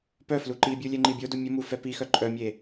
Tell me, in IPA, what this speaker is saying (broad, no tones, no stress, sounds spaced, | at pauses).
p œ f l u ǃ i bʲ u lʲ ɛ ŋ͡ǃ i bʲ o d u mʲ ə m u f ɛ p i x œ ǃʼ œ mʲ e